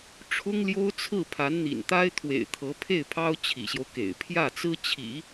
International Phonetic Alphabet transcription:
ʈ͡ʂʰ ʊ˥ ŋ l j o˥ ʊ̯ t͡sʰ ɹ̩˥˩ pʰ a˧˥ n n̪ ḭ˨˩ n t̪ a˥ ɪ̯ t̪ʰ w ḛ˨˩ ɪ̯ t̪ʰ ɤ˧˥ pʰ e˥˩ ɪ̯ pʰ ɑ˥ ʊ̯ t͡ɕʰ ḭ˨˩ ɕ j o˦ ʊ̯ k ḛ˨˩ ɪ̯ pʰ j ä˥˩ t͡s ɹ̩˥ t͡ɕʰ ḭ˨˩˦

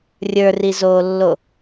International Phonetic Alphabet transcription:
rʲ ə˞ r i z oː lː o

